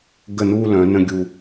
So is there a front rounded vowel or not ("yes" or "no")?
yes